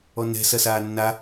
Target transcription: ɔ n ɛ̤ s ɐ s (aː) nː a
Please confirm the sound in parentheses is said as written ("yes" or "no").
yes